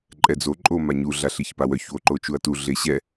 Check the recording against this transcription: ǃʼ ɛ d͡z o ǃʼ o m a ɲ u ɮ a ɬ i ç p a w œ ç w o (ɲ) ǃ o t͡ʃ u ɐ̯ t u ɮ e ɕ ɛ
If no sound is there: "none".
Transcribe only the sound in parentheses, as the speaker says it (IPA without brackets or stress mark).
none